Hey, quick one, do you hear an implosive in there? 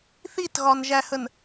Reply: no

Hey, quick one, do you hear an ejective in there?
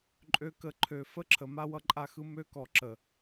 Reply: yes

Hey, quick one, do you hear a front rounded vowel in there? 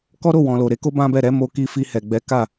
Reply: no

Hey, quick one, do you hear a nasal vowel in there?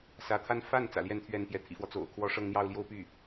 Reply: no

